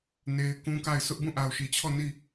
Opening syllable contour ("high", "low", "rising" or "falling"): high